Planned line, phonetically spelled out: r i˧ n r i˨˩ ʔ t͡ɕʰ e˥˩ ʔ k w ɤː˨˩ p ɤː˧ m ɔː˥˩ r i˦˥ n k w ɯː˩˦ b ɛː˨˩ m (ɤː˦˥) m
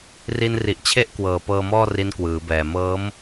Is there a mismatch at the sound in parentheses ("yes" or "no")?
no